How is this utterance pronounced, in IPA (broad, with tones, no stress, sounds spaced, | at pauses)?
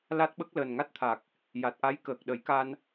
l a˦˥ t̚ ɓ ə˦˥ k̚ l əː˨˩ n ŋ a˦˥ t̚ t̪ʰ a˨˩ k̚ | j a˨˩ t̚ ʔ a˧˥ j k əː˨˩ k̚ ɗ ə˨˩˦ j k a˧ n